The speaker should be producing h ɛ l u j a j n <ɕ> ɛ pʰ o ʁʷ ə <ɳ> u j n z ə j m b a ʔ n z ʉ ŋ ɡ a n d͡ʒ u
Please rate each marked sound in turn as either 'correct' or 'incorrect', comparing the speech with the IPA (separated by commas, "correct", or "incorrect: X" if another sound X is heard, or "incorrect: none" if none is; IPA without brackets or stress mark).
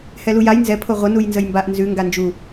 incorrect: z, incorrect: n